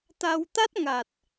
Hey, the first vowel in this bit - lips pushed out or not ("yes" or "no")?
no